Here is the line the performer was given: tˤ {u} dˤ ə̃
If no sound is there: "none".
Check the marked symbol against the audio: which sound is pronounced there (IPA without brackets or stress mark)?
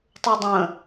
u